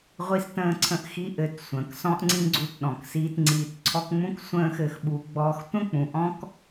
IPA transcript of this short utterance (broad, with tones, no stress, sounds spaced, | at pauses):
ʁʷ i˧ s t ə̃ː˧ ǀʰ ə̃˧ ʔ x i˦ ʔ ɘ˨˦ t sʷ ə̃ː˨ k s ɔ̃˦ ʔ ŋ͡ǀ ĩ˦ ɡ͡ǀ u˧ t ɗ ɔ̃˨ k s iː˧ t ŋ͡ǀ iː˨ t ǀʰ ɔ˧ k ŋ͡m ũ˦ k sʷ ə̃ː˦ x ɘ˧ x ɓ u˧ ɡ͡b ɔː˦ x tʷ ə̃˦ k͡p ũ˨ ʔ ɔ̃˦ k